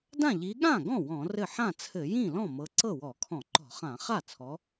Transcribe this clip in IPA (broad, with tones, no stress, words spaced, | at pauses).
dã˥˩ʎi˨˦ ɠã˥˩ɡɔ̃˥˩ wɔ̃˧˩˧rɘ˥˩ ħã˥˩t͡sʰɘ˧˩˧ jĩ˥˩lɔ̃˥˩ mɤ˨˦ǀɤ˥˩wɔ˧˩˧ kʰɔ̃˧˩˧ǃɔ̤˧˩˧χã˧˩˧ χa˥˩t͡sʰɔ˨˦